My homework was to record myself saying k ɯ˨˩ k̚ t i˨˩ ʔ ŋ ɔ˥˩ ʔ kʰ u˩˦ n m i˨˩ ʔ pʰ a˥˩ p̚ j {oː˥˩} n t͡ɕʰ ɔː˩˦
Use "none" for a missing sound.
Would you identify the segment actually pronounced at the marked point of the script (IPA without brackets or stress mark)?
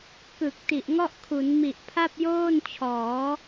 oː˥˩